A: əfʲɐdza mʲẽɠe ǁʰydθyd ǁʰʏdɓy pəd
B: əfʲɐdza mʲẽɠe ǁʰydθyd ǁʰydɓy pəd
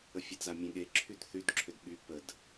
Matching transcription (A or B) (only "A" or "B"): A